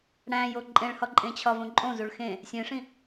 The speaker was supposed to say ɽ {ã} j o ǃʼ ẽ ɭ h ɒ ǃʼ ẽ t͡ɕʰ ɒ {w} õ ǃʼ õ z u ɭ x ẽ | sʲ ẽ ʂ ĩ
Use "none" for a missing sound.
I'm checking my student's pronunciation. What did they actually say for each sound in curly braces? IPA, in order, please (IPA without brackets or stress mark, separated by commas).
æ̃, v